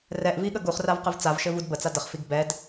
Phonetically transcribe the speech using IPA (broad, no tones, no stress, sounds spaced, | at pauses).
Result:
r ɛ ʔ v i ɠ ə ɡ u χ r a v q ɘ v t͡s a v ʃ ɘ v u d b ə t͡s a d ə χ f i ɡ b ɛ d